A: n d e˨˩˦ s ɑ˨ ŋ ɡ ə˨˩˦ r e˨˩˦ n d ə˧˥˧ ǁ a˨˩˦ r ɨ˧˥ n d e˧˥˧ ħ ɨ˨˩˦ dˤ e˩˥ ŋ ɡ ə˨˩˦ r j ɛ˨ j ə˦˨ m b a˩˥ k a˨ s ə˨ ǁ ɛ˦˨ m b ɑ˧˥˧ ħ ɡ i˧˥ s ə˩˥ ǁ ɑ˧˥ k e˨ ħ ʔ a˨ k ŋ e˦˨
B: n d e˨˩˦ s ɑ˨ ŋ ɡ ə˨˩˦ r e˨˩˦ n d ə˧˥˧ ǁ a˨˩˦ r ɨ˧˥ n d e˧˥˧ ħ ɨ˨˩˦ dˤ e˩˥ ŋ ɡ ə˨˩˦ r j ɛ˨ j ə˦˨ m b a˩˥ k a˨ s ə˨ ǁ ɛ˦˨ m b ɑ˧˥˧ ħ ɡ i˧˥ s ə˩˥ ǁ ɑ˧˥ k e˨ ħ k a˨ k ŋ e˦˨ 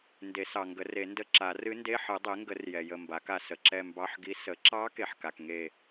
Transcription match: B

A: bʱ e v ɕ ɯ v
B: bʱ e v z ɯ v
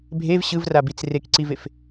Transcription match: A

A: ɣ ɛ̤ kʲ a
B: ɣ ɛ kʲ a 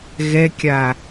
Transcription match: B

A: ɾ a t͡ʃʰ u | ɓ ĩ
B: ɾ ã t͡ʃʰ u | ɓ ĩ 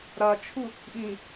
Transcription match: A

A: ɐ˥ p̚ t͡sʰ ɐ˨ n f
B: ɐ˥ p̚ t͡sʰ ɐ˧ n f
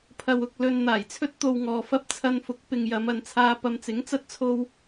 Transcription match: B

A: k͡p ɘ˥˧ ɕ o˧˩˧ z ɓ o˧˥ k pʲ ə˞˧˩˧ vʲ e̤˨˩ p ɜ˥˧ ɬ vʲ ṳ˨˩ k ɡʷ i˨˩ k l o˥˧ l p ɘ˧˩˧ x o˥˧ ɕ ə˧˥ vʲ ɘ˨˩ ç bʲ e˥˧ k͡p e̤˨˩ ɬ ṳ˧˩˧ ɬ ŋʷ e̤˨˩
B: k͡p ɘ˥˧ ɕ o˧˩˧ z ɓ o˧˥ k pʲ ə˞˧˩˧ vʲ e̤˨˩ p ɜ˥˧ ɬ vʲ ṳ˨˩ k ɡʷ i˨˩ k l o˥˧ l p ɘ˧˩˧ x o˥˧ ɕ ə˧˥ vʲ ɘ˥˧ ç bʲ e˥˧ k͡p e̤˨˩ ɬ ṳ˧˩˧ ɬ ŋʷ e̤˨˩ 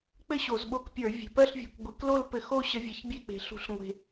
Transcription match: A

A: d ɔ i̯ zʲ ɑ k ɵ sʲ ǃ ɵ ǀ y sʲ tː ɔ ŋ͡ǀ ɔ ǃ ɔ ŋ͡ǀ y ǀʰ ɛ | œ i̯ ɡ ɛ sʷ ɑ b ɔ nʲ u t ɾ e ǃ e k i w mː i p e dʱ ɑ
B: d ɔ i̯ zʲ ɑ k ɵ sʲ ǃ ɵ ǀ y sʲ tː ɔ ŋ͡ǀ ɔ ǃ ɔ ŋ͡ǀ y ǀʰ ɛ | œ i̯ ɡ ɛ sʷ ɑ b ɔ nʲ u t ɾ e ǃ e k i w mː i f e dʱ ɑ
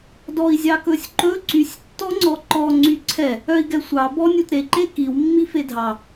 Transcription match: B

